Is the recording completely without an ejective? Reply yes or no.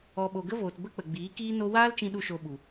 yes